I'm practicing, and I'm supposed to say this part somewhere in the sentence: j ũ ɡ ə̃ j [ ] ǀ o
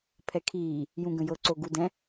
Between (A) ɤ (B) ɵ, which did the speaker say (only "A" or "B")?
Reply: A